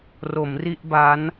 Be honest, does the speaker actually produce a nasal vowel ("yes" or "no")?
no